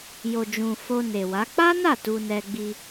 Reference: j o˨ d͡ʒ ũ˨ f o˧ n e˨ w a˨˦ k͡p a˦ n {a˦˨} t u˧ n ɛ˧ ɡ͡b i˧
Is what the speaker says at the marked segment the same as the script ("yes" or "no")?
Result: yes